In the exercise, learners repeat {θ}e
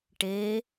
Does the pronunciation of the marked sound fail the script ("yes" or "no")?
yes